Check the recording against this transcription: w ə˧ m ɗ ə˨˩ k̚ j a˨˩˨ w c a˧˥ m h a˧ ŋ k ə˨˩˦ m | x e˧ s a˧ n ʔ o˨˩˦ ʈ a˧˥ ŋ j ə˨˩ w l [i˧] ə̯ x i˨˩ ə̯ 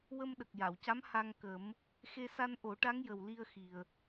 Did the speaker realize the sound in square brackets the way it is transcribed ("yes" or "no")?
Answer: yes